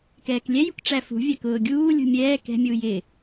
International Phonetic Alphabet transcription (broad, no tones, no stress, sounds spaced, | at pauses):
k ɛː k lʲ ɛ j ṳ k ʈ͡ʂ æ f ṳ vʲ æ k ʊː ɡʲ uː lʲ ṳ mʲ ɛː k ɛ̤ mʲ uː j ɪ